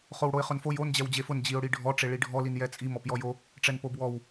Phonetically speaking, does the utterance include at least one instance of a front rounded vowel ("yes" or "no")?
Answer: no